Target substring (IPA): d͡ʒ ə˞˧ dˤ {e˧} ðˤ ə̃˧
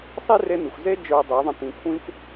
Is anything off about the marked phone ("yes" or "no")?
yes